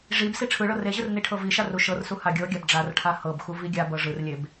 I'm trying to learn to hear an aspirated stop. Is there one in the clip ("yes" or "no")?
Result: yes